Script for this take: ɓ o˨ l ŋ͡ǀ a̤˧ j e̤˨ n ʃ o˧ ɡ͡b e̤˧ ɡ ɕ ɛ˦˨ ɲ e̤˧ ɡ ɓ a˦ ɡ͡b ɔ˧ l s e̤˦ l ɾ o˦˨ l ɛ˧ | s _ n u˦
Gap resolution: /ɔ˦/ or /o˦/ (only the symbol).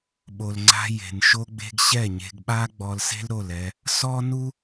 ɔ˦